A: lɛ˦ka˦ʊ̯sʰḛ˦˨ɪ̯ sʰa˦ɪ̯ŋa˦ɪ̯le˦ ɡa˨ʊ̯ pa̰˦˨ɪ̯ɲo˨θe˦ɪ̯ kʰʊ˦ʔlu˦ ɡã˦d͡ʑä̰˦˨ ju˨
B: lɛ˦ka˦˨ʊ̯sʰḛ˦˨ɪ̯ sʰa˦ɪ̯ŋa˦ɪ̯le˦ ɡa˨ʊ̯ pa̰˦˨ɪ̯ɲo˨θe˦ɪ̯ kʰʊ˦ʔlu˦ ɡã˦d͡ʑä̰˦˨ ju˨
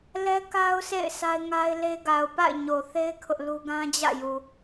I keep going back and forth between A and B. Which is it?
A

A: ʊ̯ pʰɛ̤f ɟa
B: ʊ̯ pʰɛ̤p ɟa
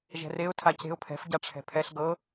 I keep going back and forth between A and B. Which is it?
A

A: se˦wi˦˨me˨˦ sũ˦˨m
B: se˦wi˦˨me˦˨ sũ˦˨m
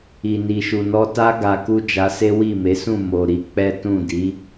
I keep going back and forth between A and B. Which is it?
A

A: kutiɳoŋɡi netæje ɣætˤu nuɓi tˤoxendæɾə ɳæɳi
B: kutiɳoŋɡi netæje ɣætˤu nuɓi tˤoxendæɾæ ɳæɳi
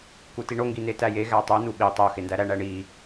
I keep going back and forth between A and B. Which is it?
B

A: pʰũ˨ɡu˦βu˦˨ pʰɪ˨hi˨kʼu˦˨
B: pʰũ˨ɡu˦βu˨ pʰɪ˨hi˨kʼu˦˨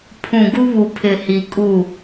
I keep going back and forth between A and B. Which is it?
B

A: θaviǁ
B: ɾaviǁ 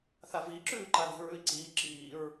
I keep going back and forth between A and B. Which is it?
A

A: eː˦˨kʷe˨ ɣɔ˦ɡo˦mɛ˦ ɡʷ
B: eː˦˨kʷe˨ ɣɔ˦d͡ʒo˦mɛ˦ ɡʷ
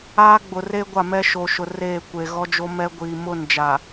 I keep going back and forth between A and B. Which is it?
B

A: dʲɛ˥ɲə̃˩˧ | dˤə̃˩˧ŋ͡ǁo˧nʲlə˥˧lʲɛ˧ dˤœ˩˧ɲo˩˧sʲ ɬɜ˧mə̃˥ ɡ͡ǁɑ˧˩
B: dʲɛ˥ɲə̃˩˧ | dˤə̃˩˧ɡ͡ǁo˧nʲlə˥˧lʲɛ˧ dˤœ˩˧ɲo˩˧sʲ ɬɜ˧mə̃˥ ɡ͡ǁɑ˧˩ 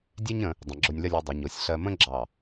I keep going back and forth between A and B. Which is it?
B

